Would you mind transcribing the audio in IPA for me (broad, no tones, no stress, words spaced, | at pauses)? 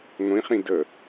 ŋʷĩχĩ də